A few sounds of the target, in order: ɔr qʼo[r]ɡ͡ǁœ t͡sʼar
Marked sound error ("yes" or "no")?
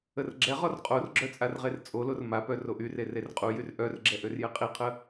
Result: no